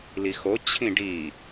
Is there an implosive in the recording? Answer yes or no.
no